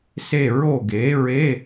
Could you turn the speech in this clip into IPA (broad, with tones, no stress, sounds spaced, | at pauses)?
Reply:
s e˦˨ ɹ o˦˨ ɡ e˨˥ ɹ e˧˥˧